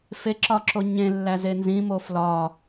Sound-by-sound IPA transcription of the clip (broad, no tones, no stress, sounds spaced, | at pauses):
f e ǁ ɒ ǁ o ɲ ẽ lː æ z e n z ĩ m o f l ɒ